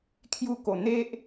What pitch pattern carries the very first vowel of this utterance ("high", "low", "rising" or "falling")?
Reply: falling